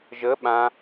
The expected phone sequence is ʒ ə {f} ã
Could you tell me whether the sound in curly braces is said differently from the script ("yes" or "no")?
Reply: yes